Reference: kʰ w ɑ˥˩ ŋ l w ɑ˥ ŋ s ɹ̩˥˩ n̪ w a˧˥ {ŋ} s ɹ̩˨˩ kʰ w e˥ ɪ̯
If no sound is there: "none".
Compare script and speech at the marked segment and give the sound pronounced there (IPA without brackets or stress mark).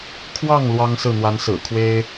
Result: n